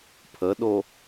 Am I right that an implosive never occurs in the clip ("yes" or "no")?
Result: no